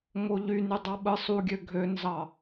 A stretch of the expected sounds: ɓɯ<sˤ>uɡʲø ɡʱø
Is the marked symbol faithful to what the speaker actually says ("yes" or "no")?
yes